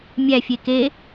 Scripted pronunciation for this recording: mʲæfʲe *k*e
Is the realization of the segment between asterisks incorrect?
no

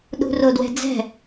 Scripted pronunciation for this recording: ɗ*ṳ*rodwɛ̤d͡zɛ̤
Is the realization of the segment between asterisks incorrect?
no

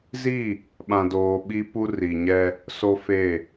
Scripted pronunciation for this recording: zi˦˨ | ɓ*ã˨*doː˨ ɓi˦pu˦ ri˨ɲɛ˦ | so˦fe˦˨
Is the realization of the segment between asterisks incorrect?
no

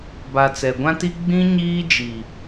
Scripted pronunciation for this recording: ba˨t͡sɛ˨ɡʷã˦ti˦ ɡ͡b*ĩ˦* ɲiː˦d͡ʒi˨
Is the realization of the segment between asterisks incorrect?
no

